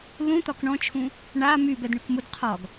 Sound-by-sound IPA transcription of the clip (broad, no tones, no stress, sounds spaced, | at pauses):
l ũ t̪ ɒ k ɳ ɔ̃ t͡ʃʰ ũ | ɳ a m y b ɛ d ɳ y k m u d qʰ ɒ ɡ